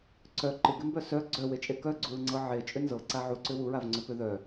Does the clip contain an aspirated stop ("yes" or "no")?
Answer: no